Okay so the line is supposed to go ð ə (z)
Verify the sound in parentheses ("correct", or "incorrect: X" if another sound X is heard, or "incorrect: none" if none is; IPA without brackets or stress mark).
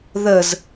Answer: correct